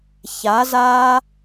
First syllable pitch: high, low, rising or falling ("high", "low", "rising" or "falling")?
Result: rising